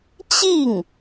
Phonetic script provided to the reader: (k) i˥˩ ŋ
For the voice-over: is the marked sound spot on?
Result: no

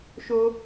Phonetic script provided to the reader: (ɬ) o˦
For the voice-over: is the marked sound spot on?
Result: no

